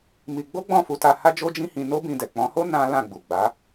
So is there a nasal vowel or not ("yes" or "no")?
yes